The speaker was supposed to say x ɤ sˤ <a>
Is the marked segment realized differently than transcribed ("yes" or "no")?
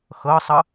yes